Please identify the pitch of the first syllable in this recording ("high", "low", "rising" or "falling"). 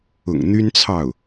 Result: low